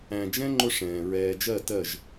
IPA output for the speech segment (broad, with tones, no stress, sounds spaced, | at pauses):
æ̃˨ d͡ʒ ɛ̃˦ ŋ͡ǃ ʊ˦ ʂ ɛ̃ː˨ ɹ ɛː˨ d͡ʒ ɜ˦˨ t ɜ˦˨ ʒ